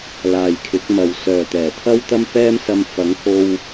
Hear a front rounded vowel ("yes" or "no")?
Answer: yes